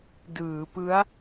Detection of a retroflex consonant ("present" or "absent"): absent